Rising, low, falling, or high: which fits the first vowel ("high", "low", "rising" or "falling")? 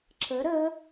rising